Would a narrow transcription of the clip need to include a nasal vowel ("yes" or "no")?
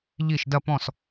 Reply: yes